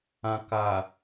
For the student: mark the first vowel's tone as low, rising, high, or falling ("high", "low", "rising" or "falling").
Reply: low